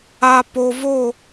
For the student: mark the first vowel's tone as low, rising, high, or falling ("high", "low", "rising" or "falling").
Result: low